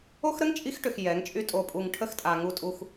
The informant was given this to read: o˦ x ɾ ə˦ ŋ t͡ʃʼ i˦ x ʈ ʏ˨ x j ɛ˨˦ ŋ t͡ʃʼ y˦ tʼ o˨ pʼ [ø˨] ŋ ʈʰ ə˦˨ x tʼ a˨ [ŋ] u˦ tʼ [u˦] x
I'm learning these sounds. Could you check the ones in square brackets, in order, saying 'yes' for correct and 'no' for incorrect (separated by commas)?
no, yes, yes